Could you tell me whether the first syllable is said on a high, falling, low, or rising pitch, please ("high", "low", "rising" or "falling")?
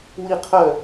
falling